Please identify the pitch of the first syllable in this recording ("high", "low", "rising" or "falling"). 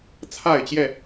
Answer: falling